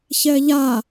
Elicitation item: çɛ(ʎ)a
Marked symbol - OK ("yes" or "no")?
yes